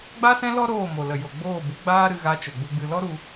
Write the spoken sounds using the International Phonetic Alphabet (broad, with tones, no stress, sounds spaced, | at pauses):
ɡ͡b a˦ s ɛ̃˦ l ɔ˦ ɾ oː˦˨ m o˨ l ə˨ j o˨ ɡ͡b oː˦˨ b u˨˦ ɡ͡b aː˦ ɾ ɨ˧ ɣ a˧ t͡ʃ ə˨ ɡ͡b u˧ ɡ͡b ɨ˧ l ɔ˦ ɾ u˧